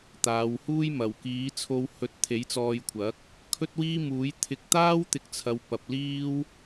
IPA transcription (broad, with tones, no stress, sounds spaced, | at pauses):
t̪ aː˨˧ w h uː˥ j m ɐ˨˩ w k iː˨˥ t͡sʰ o˧ w h ɵ˨˥ t̚ t̪ʰ e˨˥ j t͡s ɔː˧ j kʷʰ ɐ˨˥ k̚ | kʰ ɵ˥ t̚ w iː˥ m uː˨˥ j t̪ʰ ɪ˧ k̚ t̪ aː˥ w t̪ ɪ˨˥ k̚ t͡sʰ ɐ˨ w p ɐ˨ p̚ l iː˥ w